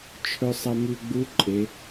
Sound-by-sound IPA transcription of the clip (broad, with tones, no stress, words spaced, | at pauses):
t͡ʃʰɵ˧sˤɐ˧ mʉ˧ɡ͡bu˧˥ǃʼe˩˧